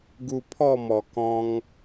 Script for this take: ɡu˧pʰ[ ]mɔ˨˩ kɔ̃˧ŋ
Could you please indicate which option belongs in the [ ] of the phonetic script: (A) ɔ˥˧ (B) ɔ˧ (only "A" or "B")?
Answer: A